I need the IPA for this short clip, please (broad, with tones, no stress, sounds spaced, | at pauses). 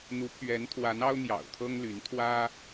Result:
n̪ u˧˥ pʰ ɥ ɛ˧˥ n t̪ʰ w a˧˥ n ɑ˥ ʊ̯ n̪ j ɑ̰˨˩ ʊ̯ t̪ʰ ɤ˥ ŋ l y˧˥ n t̪ʰ w ä˥